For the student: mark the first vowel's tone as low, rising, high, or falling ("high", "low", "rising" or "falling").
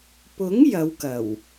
rising